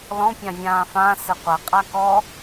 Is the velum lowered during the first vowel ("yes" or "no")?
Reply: yes